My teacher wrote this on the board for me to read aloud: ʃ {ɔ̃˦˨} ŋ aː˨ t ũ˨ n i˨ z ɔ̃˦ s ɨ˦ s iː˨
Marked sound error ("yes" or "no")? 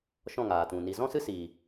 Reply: no